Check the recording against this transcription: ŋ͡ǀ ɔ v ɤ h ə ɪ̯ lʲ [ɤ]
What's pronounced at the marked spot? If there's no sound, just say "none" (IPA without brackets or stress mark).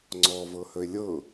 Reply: ɤ